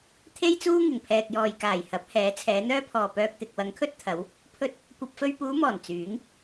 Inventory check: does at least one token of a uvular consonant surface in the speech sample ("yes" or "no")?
no